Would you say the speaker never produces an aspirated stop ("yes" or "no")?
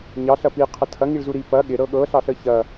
no